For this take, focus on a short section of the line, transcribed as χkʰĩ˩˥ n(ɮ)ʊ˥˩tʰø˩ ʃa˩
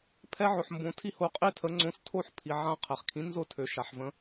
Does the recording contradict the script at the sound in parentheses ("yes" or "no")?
yes